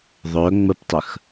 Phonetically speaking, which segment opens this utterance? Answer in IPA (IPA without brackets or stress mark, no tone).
ðˤ